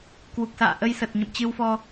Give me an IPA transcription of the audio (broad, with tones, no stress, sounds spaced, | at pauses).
k w u˨˩ k̚ s a̰ː˧˨ ʔ ə˧ j s ə˨˩ t̚ ɲ ə̰˧˨ m t͡ɕ ɨ˧ w f ɔ˧